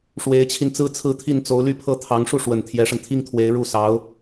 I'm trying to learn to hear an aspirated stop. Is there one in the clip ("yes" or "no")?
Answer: yes